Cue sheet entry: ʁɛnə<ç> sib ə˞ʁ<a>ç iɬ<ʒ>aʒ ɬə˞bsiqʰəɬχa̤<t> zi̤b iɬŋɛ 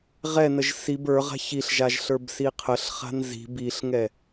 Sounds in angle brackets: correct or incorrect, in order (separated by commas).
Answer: incorrect, incorrect, correct, incorrect